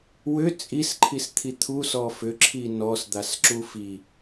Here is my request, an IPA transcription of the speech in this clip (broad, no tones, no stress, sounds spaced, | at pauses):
w ʏ t͡sʼ i s ǃʰ i s t̪ʰ i t̪ʰ u s ɔ f ʏ ǁʰ i n ɔ s d̪ a s ǁ u f i